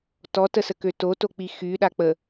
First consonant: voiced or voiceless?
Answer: voiceless